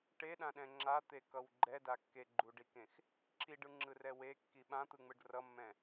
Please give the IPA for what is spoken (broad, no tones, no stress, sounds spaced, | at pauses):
ʈ e ɗ ã ɗ ɛ̃ ŋ͡ǁ a t̪ e k ʌ w ɡ͡ǃ ɛ d a kː e ɡ͡ǃ u ɖ i k ẽ x | ǁ i ɖ ɯ ŋ͡ǁ ɯ r ɛ w e kː i ɓ ã t̪ ɯ ŋ͡m ɯ ɖ r ʌ mː ɛ̃